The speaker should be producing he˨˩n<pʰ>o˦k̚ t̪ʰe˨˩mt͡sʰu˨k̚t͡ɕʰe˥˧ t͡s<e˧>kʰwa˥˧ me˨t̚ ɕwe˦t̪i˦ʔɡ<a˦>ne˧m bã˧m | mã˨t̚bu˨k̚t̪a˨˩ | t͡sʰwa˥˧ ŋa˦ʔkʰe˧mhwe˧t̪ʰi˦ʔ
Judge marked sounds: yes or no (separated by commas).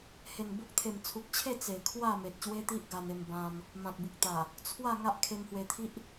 no, no, no